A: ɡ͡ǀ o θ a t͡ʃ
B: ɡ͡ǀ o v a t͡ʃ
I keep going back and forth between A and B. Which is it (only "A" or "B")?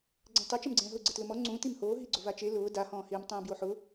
B